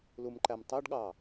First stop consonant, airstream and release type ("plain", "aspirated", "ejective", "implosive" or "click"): click